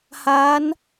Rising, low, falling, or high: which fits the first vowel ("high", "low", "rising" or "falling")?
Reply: rising